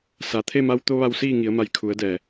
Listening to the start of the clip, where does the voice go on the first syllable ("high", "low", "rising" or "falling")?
low